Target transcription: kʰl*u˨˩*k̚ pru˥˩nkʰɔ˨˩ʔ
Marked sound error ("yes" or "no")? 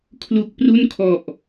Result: no